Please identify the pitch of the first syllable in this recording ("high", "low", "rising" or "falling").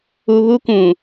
low